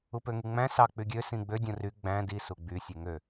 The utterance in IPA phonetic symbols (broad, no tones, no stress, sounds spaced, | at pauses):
u p ø ŋ y ŋ͡m æ̃ s ɑ k͡p y ɡʲ ø s ĩ ɡ͡b ø dʲ õ r y ɡ͡b æ̃ d i s u ɡ͡b y sʲ e ŋ ø